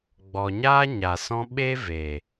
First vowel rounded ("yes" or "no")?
yes